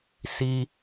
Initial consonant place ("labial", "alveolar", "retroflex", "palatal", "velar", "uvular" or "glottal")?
alveolar